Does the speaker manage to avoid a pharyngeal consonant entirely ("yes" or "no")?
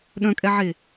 no